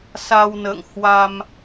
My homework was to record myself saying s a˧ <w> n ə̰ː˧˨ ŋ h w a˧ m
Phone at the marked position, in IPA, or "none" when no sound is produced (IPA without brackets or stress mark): w